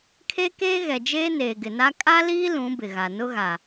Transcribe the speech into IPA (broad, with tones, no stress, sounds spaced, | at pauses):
kʰ e˦ k eː˦ ɣ ɛ˨ d͡ʒ eː˦ n eː˨ ɡ ɪ˨ n a˦ kʼ a˦ l iː˦ l ũ˨˦ b ɪ˨ ɣ a˨ n ʊ˦ ɣ a˨